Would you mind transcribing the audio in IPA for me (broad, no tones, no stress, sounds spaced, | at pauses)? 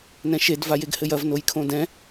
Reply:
n ɛ̃ ʃ e d v a j e ɡ h ɘ j ɐ v n o j kʰ õ d ɛ̃